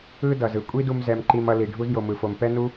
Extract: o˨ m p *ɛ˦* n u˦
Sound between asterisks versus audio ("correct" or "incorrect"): correct